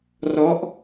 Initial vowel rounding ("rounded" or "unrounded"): rounded